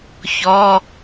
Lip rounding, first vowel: rounded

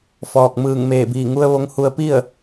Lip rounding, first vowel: rounded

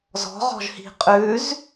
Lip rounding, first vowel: rounded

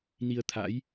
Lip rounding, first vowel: unrounded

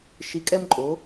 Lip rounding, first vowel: unrounded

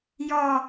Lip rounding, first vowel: rounded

